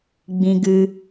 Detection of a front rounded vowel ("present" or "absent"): absent